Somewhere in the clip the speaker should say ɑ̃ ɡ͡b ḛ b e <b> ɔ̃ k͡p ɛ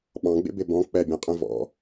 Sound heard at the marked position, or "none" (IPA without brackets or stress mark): b